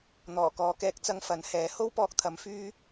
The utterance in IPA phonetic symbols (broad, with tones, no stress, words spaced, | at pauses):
n̪ɔː˨˩ kɔː˨kɛː˧k̚t͡sɐ˧ŋ fɐ˨˥nhɛː˨˥ ho˥wpɔː˧k̚t̪ʰɐ˨˧m fyː˥